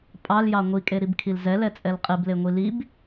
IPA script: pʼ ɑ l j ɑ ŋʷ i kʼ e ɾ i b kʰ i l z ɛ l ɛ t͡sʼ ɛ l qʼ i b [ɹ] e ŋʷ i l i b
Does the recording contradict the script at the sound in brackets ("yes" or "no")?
yes